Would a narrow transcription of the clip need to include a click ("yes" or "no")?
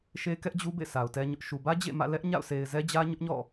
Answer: no